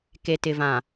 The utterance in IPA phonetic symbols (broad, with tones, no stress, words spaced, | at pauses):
ke˨tɪ˨vã˨